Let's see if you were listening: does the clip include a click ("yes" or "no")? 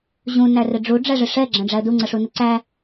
yes